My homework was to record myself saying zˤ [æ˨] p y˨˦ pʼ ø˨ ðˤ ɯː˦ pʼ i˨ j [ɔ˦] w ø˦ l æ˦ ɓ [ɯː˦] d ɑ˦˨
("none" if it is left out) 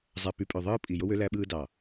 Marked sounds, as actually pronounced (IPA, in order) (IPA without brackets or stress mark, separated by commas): æ˨, o˦, ɯː˦